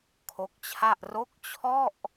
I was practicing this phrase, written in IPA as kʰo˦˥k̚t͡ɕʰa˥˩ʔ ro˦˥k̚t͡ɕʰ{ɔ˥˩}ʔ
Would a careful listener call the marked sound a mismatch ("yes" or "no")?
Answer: no